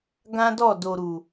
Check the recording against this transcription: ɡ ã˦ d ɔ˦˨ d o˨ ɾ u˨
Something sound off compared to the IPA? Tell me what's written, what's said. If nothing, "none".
none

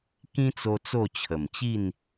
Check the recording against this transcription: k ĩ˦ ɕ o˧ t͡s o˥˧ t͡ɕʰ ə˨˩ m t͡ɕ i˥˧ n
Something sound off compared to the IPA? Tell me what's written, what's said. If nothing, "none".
ɕ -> t͡s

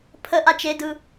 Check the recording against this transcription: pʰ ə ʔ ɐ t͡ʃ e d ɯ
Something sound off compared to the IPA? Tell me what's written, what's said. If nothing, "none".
ɐ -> a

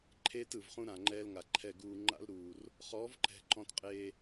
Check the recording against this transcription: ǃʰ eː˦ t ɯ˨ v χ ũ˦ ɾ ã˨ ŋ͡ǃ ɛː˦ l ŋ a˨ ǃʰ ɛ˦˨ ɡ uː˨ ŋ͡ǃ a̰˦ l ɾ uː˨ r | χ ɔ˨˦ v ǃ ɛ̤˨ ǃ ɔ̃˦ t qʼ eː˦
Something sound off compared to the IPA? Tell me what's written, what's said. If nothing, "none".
none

